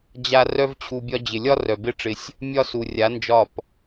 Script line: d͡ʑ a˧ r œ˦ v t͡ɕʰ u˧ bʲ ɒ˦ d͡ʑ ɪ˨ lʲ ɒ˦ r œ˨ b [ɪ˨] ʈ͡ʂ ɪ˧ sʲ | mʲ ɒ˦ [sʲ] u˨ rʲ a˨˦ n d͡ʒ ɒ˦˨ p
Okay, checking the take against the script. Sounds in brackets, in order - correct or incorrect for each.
incorrect: ɪ˦, incorrect: s

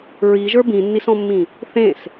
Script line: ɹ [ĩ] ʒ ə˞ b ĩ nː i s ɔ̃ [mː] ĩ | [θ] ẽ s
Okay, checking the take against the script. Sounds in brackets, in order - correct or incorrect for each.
incorrect: i, correct, correct

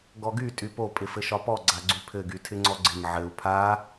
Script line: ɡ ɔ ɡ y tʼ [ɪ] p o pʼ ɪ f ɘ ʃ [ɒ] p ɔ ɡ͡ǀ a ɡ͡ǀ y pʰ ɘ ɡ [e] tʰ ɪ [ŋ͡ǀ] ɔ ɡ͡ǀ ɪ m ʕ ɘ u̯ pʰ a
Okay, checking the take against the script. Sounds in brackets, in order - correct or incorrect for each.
incorrect: y, correct, incorrect: y, correct

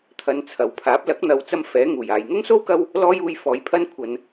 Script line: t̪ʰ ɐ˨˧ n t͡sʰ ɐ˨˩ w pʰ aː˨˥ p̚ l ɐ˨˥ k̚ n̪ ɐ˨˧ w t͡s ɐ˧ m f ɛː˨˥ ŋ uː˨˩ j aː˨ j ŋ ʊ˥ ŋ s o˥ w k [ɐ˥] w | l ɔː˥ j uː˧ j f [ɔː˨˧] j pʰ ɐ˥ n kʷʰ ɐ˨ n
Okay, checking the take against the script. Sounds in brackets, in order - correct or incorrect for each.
correct, incorrect: ɔː˨˥

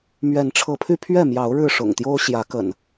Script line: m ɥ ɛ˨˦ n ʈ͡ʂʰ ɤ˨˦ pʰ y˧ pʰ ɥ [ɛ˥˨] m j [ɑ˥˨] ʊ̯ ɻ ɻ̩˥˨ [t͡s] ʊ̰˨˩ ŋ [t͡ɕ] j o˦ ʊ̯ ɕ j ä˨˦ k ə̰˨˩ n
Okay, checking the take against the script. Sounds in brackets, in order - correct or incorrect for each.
correct, incorrect: ɑ˨˦, incorrect: ʂ, incorrect: t̪

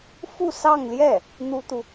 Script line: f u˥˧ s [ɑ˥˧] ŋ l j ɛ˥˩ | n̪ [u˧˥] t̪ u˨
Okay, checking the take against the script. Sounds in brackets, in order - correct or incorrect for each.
correct, incorrect: u˥

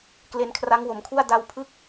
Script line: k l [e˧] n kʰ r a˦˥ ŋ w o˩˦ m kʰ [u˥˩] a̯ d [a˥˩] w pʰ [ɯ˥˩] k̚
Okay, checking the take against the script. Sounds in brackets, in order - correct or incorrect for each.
correct, correct, incorrect: a˧, correct

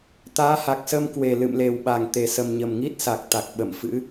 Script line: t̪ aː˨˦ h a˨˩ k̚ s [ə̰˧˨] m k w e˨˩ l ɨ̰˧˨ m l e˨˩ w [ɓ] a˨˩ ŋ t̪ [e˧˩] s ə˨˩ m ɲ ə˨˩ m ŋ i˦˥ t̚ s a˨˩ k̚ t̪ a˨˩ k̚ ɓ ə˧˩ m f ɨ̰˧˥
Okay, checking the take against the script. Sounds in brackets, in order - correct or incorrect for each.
incorrect: ə˧, correct, incorrect: e˨˩

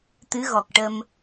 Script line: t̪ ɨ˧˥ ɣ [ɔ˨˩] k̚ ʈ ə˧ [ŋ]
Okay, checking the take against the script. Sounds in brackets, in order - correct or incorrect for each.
correct, incorrect: m

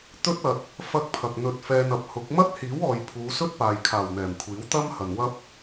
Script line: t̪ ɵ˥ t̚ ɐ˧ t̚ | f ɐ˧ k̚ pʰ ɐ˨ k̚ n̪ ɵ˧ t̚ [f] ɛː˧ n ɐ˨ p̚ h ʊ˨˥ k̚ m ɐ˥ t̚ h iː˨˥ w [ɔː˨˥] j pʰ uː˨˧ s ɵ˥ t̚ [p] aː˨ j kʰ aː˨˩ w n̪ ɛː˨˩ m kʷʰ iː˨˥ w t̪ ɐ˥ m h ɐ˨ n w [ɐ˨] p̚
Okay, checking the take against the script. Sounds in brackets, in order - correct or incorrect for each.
correct, incorrect: ɔː˨, correct, incorrect: ɐ˥

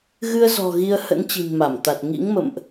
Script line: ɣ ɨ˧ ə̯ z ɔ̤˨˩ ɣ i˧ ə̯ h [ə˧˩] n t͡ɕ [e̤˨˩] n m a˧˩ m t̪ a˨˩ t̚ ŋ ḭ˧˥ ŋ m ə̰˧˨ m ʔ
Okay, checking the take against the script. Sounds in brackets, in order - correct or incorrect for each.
incorrect: ə̰˧˥, incorrect: i̤˨˩

